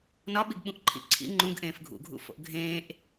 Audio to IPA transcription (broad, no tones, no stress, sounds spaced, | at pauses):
n ɒ ɓ i ɡ ɓ ũ ʔ ǃʰ ḭ ǀʰ ḭ ŋ͡ǃ ũ ɡ ʔ ẽː f ɡʱ ṵ ɡʱ ṵ f o̰ ʔ ɡʱ ẽː ʔ